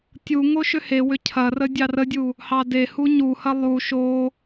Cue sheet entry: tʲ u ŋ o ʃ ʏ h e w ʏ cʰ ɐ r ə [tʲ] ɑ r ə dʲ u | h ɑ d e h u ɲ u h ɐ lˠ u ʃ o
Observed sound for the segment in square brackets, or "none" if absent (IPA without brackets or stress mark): dʲ